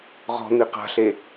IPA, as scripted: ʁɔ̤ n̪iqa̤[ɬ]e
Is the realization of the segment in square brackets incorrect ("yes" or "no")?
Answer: no